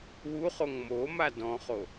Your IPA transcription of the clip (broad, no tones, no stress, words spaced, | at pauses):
wuχoŋ moma dɔ̃χo